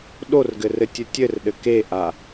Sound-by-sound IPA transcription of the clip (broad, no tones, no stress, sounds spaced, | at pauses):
ɗ o r ɡ ɘ r ɘ tʲ ɘ tʲ ɘ r ɗ ɘ k e ʔ a